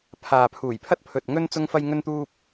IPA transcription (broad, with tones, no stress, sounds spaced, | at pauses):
pʰ aː˨ pʰ uː˨˩ j pʰ ɐ˥ t̚ pʰ ɵ˨ t̚ ŋ ɵ˥ n t͡s ʊ˥ ŋ f ɐ˥ j ŋ ɵ˥ n t̪ uː˥ p̚